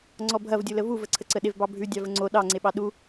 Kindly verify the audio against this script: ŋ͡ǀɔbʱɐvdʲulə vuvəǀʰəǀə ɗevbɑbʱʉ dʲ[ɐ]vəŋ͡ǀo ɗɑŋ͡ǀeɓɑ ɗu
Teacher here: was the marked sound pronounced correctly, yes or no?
no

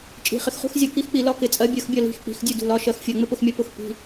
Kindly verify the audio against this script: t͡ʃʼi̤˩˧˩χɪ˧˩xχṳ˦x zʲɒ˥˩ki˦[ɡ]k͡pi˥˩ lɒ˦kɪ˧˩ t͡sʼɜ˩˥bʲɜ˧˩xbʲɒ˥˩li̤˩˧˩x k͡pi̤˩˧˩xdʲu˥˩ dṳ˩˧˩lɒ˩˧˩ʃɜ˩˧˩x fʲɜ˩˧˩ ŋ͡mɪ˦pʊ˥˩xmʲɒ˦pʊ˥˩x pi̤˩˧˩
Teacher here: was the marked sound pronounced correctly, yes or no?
no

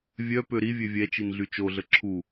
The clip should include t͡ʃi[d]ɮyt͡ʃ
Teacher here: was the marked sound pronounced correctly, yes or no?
no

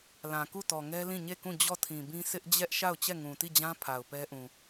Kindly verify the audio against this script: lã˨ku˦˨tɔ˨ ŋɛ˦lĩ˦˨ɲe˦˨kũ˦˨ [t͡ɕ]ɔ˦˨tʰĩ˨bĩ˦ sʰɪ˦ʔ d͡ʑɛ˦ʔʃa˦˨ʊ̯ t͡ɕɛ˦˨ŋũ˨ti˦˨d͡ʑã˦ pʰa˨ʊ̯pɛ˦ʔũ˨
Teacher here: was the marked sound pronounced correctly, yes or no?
no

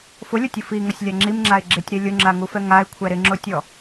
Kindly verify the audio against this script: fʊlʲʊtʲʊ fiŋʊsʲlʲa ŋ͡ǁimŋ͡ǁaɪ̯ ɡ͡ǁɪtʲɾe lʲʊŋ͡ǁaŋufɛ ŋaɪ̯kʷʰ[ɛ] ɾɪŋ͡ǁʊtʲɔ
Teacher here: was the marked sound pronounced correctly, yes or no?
yes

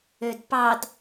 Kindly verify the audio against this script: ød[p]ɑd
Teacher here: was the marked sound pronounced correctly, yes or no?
yes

